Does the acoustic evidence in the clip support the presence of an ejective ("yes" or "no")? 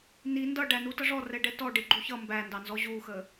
no